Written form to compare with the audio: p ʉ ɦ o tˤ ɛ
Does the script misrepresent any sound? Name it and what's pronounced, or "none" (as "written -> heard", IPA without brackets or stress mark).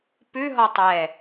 o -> ɔ